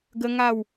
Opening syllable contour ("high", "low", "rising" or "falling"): high